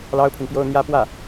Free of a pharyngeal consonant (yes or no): yes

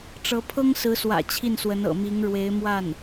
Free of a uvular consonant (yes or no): yes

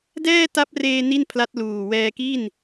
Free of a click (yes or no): yes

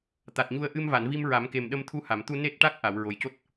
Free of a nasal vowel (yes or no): yes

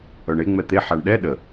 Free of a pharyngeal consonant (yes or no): no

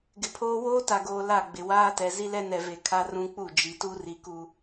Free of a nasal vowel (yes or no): no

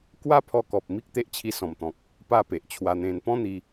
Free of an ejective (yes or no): yes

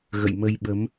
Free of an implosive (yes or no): no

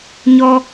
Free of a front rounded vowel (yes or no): yes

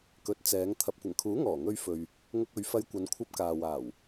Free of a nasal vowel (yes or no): yes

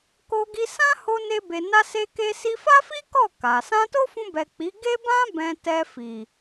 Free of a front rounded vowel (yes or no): yes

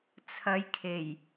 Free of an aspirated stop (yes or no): no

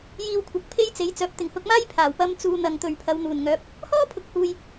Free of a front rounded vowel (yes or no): no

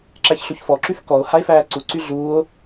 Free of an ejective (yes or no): yes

